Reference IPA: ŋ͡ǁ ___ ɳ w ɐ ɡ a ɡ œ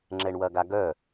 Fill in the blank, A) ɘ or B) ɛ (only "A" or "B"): B